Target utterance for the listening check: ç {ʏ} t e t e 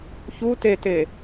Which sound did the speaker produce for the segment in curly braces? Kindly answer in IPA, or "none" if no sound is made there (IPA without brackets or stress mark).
u